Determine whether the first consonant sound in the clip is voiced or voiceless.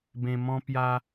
voiced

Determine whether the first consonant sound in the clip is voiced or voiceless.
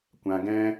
voiceless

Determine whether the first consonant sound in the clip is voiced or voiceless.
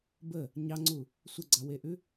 voiced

